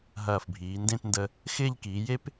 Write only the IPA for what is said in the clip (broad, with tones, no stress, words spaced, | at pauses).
ɦɐː˧˩fbʱiː˩˧ndẽ˥˧tndə˧ | xɪː˥˧ʎkiː˩˧je˥p